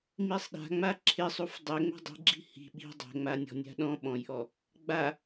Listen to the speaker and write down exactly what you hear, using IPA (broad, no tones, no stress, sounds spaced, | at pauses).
m i sˤ ɗ a̤ ŋ͡m a ǁʰ ɪ sˤ u f dˤ ɛ ŋ͡m ɛ̤ dˤ i̤ ɡ͡ǁ i̤ h i̤ ɓ i̤ dˤ ɛ̤ ŋ͡m a nʲ ɔ̤ nʲ a̤ ɗ ɔ̃ ɓ ɔ̃ j ʔ ɔ | ɡ͡b a